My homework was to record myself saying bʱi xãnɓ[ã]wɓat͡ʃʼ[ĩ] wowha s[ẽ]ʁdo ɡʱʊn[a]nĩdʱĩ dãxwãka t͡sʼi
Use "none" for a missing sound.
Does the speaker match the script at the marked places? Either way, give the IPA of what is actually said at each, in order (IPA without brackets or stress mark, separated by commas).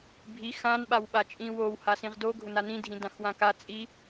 a, ĩ, ĩ, a